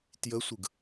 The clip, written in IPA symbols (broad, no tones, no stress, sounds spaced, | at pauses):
t j ə sʷ ɯ ɡ